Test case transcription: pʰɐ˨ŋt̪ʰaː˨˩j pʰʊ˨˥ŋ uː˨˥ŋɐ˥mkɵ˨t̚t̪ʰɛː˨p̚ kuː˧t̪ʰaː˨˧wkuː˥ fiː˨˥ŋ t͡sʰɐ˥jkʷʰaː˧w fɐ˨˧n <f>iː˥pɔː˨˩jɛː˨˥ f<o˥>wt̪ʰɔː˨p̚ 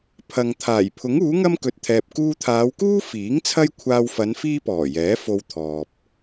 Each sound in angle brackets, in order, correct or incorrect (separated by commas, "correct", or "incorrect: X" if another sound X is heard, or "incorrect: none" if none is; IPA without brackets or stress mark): correct, incorrect: o˧